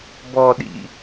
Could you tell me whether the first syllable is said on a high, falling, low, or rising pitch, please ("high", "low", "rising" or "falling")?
low